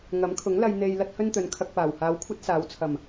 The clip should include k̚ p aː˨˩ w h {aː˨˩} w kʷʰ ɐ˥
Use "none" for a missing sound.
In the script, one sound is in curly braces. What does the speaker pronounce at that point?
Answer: aː˨˧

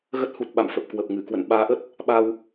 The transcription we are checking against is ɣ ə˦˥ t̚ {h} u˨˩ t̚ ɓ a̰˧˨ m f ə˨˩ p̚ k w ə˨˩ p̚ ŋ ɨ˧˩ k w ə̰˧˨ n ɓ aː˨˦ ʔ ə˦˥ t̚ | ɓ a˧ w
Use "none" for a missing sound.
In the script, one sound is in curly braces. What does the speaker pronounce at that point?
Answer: h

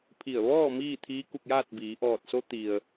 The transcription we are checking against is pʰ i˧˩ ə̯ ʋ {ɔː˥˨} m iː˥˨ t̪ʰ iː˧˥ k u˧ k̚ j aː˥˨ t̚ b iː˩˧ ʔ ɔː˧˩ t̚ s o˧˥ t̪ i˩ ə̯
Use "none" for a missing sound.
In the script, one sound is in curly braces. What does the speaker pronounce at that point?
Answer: ɔː˥˨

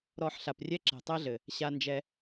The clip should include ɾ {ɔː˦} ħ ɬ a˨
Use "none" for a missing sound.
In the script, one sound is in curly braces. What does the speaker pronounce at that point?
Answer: ɔ˦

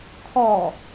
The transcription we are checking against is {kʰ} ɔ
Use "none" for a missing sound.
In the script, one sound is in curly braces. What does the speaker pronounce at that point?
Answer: kʰ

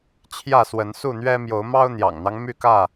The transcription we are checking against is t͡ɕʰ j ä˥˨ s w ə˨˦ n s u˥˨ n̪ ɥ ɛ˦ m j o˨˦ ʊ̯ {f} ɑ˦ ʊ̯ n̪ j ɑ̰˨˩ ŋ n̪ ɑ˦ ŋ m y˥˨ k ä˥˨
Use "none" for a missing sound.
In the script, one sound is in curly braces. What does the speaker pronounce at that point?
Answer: m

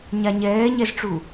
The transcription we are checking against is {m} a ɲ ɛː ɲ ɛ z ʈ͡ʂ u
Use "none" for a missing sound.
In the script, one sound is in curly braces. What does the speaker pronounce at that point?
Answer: ɲ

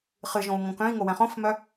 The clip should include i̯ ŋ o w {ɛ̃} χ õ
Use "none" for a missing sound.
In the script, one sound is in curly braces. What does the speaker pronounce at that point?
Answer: ɛ̃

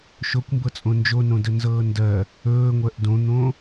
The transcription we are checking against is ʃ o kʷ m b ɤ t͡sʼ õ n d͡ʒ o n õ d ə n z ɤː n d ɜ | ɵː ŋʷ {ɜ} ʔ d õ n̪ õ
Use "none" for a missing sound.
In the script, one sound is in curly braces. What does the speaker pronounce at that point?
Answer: ɜ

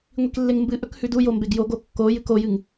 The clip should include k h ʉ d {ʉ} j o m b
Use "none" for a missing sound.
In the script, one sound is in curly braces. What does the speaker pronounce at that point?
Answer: u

